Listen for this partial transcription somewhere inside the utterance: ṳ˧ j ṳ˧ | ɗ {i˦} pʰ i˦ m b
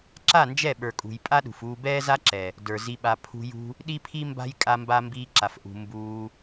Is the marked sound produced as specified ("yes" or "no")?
yes